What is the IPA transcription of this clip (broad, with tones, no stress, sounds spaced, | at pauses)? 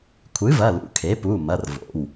kʷʰ ɨ˩˥ v ɐ˩˧˩ l ṵ˩˥ kʰ e˩˥ p u˩˧˩ m ɐ˩˧˩ r v o̰˩˧˩ w